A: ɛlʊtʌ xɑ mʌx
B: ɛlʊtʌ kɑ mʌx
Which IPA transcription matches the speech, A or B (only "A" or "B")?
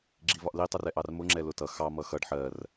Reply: A